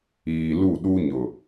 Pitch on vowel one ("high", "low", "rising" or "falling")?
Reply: low